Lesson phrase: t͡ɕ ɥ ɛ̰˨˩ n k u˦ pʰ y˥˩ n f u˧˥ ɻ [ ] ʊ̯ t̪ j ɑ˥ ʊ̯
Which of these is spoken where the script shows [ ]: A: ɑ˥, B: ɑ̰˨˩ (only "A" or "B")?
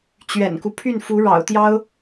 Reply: B